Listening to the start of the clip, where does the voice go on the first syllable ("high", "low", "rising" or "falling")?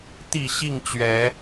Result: low